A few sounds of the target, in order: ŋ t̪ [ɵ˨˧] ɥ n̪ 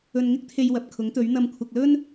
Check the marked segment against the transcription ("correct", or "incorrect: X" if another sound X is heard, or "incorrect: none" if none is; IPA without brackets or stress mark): correct